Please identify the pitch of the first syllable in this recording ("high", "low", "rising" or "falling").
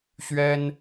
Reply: high